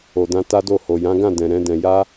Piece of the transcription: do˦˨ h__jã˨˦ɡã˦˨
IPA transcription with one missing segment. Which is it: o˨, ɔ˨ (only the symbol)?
o˨